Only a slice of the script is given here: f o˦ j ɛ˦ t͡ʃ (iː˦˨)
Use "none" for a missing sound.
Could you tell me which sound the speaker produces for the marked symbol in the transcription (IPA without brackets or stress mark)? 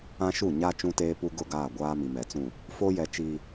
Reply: iː˦